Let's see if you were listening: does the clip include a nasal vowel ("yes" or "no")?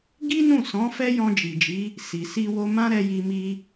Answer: yes